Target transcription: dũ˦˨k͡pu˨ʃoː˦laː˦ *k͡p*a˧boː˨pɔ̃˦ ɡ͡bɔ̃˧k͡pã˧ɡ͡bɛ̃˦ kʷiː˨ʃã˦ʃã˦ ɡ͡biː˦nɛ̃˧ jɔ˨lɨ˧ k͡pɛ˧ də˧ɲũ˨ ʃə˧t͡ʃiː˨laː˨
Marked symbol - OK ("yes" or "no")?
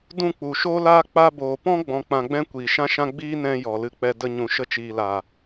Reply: yes